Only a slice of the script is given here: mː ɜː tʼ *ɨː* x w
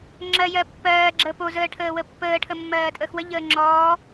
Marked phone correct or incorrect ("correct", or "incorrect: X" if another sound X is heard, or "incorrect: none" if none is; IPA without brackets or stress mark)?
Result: incorrect: əː